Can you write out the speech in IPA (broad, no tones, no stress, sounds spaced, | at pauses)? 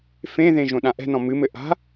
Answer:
f ẽ ð ẽ ʒ õ ɗ ã ʔ ɛ̤ n ɔ̃ m ɨ m ɘ ʔ a̤